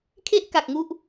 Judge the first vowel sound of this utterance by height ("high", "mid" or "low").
mid